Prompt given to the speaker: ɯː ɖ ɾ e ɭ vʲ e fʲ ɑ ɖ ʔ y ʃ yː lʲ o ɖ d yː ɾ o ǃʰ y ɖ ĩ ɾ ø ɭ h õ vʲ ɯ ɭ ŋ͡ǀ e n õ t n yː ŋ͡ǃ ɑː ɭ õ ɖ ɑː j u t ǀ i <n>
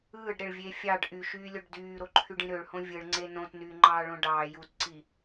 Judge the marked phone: incorrect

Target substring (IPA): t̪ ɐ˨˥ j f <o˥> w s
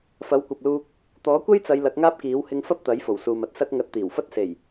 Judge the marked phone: incorrect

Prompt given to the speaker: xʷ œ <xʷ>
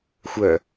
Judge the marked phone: incorrect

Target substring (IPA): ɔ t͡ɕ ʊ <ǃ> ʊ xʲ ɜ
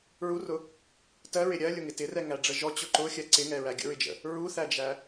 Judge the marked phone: correct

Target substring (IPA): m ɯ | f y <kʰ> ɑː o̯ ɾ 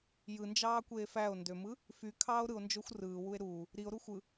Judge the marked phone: correct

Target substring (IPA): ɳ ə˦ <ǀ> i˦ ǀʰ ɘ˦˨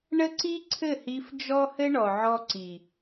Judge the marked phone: correct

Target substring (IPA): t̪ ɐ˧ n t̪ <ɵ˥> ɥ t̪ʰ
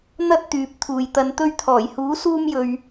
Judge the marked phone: correct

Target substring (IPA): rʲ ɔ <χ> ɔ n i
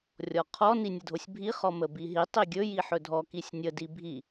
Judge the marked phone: incorrect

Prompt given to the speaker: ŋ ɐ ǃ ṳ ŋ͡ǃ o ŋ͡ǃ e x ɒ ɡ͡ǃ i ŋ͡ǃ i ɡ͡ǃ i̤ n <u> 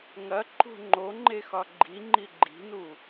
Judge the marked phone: correct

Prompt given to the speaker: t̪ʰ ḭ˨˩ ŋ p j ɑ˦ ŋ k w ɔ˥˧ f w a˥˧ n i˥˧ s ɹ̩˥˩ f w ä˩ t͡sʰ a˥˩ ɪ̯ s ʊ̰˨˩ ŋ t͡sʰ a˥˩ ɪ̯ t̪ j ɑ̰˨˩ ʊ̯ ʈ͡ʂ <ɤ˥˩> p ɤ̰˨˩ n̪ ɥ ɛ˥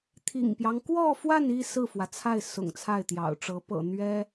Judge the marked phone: incorrect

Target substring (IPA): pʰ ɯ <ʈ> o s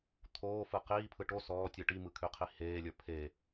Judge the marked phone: correct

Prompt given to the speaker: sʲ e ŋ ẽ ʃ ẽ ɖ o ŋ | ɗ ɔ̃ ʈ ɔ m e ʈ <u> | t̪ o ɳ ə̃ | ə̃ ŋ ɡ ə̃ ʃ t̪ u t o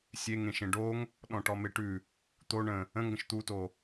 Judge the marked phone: incorrect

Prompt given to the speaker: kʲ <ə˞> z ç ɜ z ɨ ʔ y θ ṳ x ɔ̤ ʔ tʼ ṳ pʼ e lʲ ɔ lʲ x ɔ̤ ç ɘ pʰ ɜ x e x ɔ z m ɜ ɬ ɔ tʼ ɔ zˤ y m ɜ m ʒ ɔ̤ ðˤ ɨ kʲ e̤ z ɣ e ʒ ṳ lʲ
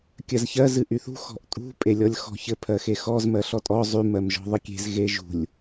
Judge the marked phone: incorrect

